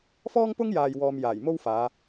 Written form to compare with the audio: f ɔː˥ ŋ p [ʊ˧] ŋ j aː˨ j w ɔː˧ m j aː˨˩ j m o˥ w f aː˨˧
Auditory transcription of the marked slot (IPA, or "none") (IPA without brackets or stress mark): ʊ˥